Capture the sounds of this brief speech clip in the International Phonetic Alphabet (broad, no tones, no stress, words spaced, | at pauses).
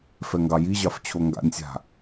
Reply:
fɛŋɡɑjiʑɑf t͡ɕʰoŋɡa̰nʲsʲa̤